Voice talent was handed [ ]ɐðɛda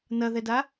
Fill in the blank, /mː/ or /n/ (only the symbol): n